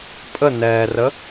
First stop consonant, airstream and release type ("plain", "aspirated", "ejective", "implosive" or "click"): ejective